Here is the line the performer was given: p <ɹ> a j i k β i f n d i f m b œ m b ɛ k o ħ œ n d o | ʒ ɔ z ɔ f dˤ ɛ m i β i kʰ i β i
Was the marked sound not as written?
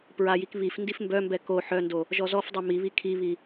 no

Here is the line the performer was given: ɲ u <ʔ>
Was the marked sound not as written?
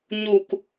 yes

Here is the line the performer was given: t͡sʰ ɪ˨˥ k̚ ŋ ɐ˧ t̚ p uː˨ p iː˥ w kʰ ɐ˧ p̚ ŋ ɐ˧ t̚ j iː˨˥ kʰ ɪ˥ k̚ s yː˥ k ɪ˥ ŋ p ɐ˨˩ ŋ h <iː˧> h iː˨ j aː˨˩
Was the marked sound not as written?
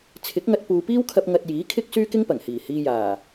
yes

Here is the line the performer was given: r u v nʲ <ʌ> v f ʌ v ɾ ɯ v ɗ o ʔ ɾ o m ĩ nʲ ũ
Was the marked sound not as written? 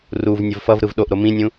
no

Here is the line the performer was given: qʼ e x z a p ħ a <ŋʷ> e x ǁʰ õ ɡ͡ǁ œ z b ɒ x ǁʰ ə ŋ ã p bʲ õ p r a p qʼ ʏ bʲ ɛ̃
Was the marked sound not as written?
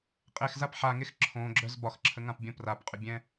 yes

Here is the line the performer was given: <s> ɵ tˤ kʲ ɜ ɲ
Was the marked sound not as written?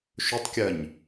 yes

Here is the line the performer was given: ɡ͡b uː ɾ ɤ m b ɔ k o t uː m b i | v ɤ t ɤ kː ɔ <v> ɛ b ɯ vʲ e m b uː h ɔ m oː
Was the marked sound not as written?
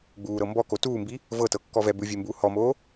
no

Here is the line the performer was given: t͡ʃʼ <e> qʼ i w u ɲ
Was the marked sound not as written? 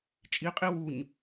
yes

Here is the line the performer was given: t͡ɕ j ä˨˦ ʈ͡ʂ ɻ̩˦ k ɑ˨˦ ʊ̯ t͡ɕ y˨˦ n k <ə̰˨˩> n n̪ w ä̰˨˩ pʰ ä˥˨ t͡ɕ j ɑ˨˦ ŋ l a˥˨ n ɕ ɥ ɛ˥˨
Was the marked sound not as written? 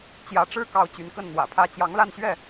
yes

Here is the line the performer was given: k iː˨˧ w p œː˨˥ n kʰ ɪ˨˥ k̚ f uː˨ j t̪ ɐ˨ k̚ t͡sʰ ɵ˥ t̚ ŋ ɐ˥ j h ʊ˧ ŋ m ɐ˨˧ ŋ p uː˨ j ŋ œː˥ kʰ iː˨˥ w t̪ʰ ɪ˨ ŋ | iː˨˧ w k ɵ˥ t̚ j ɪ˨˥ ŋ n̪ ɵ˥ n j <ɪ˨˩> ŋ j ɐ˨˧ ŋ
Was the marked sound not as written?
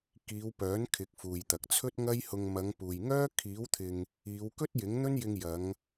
yes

